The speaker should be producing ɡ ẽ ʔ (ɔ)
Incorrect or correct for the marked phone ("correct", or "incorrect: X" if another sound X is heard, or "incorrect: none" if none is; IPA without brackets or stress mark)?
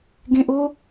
incorrect: o